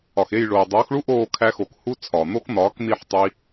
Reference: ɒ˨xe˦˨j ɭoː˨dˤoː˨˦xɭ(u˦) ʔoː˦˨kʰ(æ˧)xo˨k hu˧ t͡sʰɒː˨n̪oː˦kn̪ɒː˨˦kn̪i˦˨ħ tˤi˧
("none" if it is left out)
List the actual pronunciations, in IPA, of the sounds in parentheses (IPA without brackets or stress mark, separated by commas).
u˦, æ˧